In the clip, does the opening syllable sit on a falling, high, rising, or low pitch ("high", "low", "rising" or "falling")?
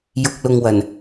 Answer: low